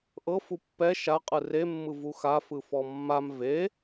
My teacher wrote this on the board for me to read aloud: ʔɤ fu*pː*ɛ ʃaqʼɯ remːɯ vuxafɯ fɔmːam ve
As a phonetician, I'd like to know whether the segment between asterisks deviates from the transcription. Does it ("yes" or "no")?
no